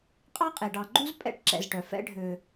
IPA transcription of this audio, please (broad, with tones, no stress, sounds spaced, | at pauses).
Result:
qʼ ɑ˥ qʼ e˩ ɖ ɑ˨ ɡ͡ǃ u˥ z pʼ ɛ̰˥ ʈ ǁ ɛ̰˨ z ʈ œ˩ f ɛ̰˦ ɖʱ ø˨